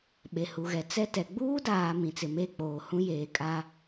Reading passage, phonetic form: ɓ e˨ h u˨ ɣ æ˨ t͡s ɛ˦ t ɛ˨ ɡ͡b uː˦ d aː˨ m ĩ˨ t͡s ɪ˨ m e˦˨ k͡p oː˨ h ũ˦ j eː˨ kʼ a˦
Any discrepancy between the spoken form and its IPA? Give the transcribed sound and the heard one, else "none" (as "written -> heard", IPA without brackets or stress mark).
æ˨ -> ɛ˨